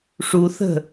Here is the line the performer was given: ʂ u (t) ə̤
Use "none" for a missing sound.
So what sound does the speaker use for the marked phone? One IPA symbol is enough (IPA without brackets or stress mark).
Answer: θ